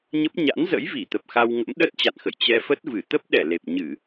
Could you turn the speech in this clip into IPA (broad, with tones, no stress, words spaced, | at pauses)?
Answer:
ɲə˦˥p̚ ɲa̰˧˥nzə̰˧˥jvi˧˩t̪ə˨˩p̚ xa˧wŋə̰˧˥m ɗə˦˥t̚t͡ɕa̰˧˨nxə̰˧˨j t͡ɕɛ˧fə˦˥t̚vɨ˧˩ t̪ə˦˥p̚ɗɛ˧˩ le˨˩p̚ɲɨ˧˩˨